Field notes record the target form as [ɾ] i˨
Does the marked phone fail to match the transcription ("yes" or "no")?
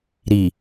no